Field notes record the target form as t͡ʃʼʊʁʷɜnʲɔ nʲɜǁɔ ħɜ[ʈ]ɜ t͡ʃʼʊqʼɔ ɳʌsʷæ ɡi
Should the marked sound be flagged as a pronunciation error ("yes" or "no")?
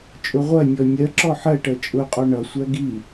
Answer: no